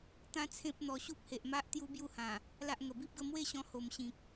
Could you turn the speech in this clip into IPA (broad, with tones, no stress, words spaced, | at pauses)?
t̪ã˦t͡sʰẽ˦p̚ n̪ɔ˧ ɕu˦p̚he˨ʔma˦ʔ t̪ju˦bju˥˧hã˨˩ | la˦ʔŋə˨˩ bi˦p̚ɡə˥˧ mwe˥˧ɕɔ̃˧ ho˨˩mɕĩ˨k̚